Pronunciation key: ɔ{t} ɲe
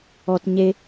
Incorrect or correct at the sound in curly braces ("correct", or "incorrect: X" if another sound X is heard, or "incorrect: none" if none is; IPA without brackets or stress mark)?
correct